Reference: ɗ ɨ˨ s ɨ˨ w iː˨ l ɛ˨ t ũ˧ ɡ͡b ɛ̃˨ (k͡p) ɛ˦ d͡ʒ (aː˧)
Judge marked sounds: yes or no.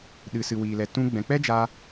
yes, yes

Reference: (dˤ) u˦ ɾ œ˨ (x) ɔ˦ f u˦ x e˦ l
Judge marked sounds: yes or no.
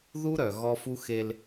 no, no

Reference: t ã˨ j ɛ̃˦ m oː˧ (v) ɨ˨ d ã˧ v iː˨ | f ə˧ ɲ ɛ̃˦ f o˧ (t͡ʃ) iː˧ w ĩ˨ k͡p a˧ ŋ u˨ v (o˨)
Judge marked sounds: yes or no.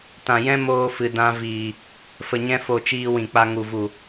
no, yes, no

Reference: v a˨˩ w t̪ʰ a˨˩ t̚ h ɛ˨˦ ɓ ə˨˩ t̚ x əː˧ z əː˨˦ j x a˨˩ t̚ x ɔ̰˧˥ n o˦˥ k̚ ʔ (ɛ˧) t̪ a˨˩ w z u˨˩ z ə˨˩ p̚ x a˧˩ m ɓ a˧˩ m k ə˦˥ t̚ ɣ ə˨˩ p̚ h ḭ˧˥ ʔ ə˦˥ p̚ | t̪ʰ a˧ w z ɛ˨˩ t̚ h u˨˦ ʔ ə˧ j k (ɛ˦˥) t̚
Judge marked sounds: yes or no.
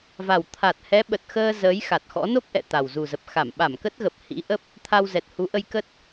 no, no

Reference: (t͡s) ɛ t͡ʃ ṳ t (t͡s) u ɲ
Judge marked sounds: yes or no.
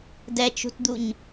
no, no

